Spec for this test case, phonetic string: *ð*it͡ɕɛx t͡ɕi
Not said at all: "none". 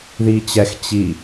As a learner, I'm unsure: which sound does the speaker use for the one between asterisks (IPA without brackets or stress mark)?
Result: ð